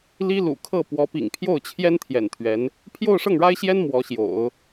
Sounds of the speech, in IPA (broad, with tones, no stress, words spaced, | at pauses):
li˥lṵ˨˩kʰɤ˥˩ pwɔ˧˥pḭ˨˩ŋpʰjo˥˩ʊ̯t͡ɕʰjɛ˥n t̪ʰjɛ̰˨˩nt̪ʰɥɛ˧˥n | pʰjo˥˧ʊ̯ʂɤ˥˩ŋɻa˥ɪ̯ɕjɛ˥n mwɔ˧˥ɕjo̰˨˩˦ʊ̯